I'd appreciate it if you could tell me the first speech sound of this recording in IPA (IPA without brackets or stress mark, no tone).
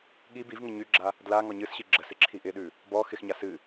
ɠ